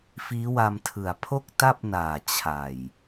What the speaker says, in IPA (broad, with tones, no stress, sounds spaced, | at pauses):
f iː˦˥ w a˧ m tʰ ɯ˨˩ a̯ pʰ o˥˩ k̚ t a˥˩ p̚ n aː˨˩ t͡ɕʰ a˨˩ j